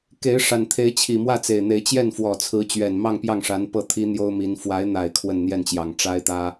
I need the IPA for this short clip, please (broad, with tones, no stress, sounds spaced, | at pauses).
k e˧˥ ɪ̯ ʂ a˨˩ n t̪ʰ e˧˥ ɪ̯ t͡ɕʰ i˨˩ m w ä˥˩ t͡s e˨˩ ɪ̯ n̪ e˧˥ ɪ̯ t͡ɕ j ɛ˥˩ n f w ɔ˨˩ t͡sʰ ɹ̩˧˥ t͡ɕ ɥ ɛ˨˩ n m ɑ˥˧ ŋ p j ɑ˥˩ ŋ ʂ a˧˥ n p ɤ˥˩ t̪ʰ i˥ n̪ j o˥ ʊ̯ m i˧˥ n f w a˧˥ ɪ̯ n̪ a˨˩ ɪ̯ kʰ w ə˥˧ n n̪ j ɛ˥˩ n t͡ɕ j ɑ˨˩ ŋ ʈ͡ʂ a˥ ɪ̯ t̪ ä˥